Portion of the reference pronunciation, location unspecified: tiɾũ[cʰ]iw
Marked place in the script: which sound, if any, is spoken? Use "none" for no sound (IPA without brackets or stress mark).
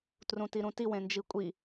t